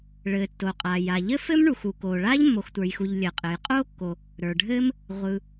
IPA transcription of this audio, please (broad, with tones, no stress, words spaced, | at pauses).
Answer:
ɭɘː˩ tːo˩qʼaː˩ ja˩ ʎɘ˥fɘ˥mɳu˩x u˩koː˩ɭaː˥ʎ mːo˩xtʷə˞˩jxu˩ʎ lʲɘː˩qʼɘː˩j qʼoː˥kːo˩ | ɾə˞˩ɖʱɘː˥m | ʁʷɯ˩